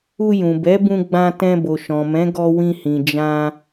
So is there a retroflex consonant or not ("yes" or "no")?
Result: no